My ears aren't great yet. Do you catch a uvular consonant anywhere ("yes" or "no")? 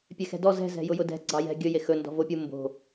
no